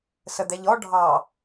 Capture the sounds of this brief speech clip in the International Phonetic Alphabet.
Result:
səd̪ɛʎɔ ɖʱɑ

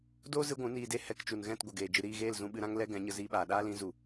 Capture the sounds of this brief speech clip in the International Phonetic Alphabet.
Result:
do˦ zɨ˦ɡʷũ˨˦niː˧de˦ hɛ˧kt͡ʃu˨n ɣɛ̃˦˨t ɡʷə˨ɡeː˨ d͡ʒɨ˨ɾiː˦˨ɣeː˦˨l zũ˧ɓɨ˧ɾã˦ŋ lɛ˦ɡɛ̃˨˦ ɲə˧ziː˧ɓaː˨ ɗaː˦lĩ˨˦ zu˨

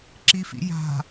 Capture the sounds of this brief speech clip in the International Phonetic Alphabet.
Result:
ǁifḭja̤

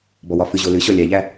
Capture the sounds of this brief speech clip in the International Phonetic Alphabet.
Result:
bɔwɒfɨʑo lɨɕɔ lʲæʎæ

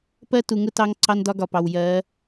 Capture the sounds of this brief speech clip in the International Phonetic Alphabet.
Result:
pɜ˦tu˨ŋʊ˦ tɑ˦ŋ ǀɑ˦ndɒ˦ɡɒ˨pɑ˨w jɜ˨˦

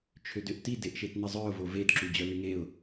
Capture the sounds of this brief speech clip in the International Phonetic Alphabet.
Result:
t͡ʃʰødøʔti deʔʃetnəzˤœʊ̯ voved ǁud͡ʑœlyŋeʊ̯

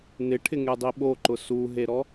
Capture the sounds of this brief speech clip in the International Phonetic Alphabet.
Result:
nɪʈʰɪŋedˤi ɓoǃʊ suɦeɾɔ

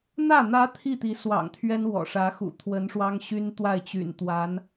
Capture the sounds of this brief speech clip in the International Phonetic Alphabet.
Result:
n̪ä˥˩ n̪ä˧˥ t̪ʰi˥˩ t̪i˧˥swɑ̰˨˩ŋt̪ʰɥɛ˥n wɔ̰˨˩ʂä˧˥xṵ˨˩ t̪ʰwə˧˥nʂwɑ˥ŋ ɕy˥n t̪wa˥˩ɪ̯t͡ɕy̰˨˩n t̪wa˧˥n

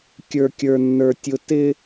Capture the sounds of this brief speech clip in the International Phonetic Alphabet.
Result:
kʲə˞˥kʲə˞˥nːə˞˥ tʲʊ˥ tɪ˥

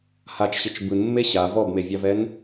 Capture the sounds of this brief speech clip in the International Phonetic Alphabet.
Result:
hat͡ʃɕɪt͡ʃ bɯnmːe ɕa vɔbmevʲɑvɛn

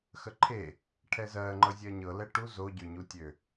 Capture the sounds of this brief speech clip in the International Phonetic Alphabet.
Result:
xəǃʰe | ʈʰɛzɜŋ͡ǃɤ zʲɜɲɤlɛ ʈu zoɟøɲu tʲø

